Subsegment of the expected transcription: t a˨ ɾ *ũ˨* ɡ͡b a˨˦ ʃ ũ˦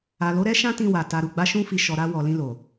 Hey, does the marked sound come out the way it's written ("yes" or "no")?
no